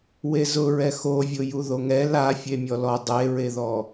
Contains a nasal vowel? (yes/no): no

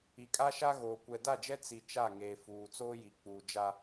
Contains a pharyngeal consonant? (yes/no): no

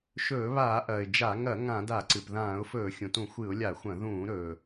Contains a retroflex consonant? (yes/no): no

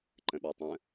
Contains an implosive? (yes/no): yes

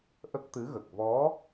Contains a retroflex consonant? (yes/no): no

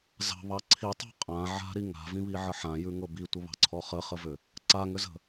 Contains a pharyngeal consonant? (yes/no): yes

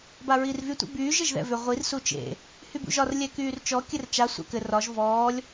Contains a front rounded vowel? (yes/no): yes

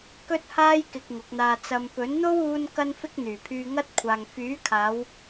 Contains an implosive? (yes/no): no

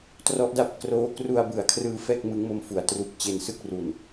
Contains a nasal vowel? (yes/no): no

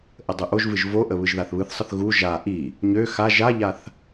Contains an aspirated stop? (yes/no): no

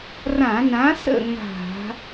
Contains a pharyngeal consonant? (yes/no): no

